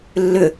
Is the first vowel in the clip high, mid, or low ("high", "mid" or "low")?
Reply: high